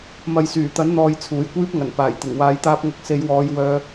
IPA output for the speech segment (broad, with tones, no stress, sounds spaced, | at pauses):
m ɐ˨ j s yː˨˩ t̪ ɐ˨˥ n n̪ ɔː˧ j t͡sʰ uː˨˩ j kʷ iː˥ p̚ ŋ ɐ˨˩ n p aː˨˩ j t̪ ɪ˨˩ ŋ w aː˨˧ j t̪ aː˧ p̚ ŋ ɐ˨˥ k̚ s e˨˧ j w ɔː˨˧ j w œː˧